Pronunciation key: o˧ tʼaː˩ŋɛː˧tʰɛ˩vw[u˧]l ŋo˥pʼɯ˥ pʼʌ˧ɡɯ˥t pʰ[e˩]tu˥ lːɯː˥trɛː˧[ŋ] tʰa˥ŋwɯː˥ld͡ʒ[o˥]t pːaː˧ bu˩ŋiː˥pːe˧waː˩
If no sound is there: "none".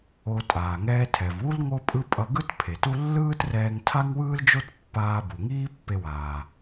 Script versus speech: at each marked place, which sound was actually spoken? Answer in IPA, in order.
u˥, e˩, ŋ, o˥

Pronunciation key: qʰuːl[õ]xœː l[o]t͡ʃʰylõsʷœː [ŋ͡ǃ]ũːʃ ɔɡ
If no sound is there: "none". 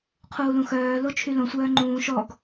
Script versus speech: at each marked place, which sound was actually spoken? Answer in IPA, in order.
ũ, o, ŋ͡ǃ

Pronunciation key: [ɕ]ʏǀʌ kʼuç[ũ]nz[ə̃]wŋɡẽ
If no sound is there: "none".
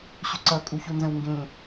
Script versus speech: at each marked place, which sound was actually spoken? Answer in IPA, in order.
ɕ, u, ə̃

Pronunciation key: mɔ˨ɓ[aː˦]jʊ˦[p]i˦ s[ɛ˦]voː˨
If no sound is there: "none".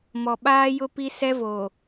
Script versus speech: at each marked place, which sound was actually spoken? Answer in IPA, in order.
aː˦, p, ɛ˦

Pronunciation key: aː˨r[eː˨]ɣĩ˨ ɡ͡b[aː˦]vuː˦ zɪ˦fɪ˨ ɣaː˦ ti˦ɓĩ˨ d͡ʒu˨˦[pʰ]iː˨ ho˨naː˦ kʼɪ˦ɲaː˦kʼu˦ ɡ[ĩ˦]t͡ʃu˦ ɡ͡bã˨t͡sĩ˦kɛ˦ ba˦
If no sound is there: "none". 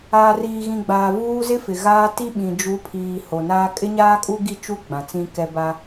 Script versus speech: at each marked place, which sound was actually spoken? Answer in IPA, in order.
iː˨, aː˨, pʰ, i˦

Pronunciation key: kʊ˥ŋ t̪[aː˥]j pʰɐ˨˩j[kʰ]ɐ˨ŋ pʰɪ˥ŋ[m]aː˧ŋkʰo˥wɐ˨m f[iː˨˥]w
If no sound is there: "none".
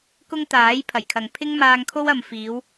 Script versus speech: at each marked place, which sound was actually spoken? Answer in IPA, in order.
aː˨˥, kʰ, m, iː˨˧

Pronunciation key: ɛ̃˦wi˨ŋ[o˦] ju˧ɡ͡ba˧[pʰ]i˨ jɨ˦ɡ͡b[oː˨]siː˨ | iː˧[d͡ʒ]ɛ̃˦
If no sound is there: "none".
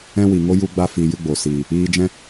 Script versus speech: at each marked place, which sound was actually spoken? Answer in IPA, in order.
o˦, f, o˨, d͡ʒ

